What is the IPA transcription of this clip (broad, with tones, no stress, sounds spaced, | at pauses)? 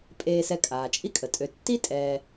pʼ eː˨ s ɛ˨ kʼ aː˩ t͡ʃʼ i˦ kʼ ə˩ tʼ ø˨ tː i˥ tʼ ɛː˨